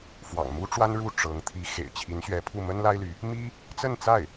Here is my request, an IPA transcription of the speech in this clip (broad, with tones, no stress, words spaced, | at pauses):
fwɑ̰˨˩ŋmu˥ʈ͡ʂwa˥n ɻu˥˩ ʈ͡ʂɤ˧˥ŋ t̪ʰi˧˥ xḛ˨˩ɪ̯t͡ɕʰi˧˥nɕɥɛ˧˥pʰu˥˩ mə˥nla˥ɪ̯ly˧˥ | mi˥ | t͡sə˥˧nt͡sa˥˩ɪ̯